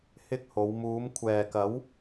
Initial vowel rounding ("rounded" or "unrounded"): unrounded